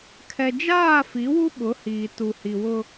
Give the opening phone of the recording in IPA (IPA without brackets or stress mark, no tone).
kʰ